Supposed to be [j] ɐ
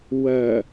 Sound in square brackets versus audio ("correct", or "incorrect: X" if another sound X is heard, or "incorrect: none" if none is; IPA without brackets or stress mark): incorrect: w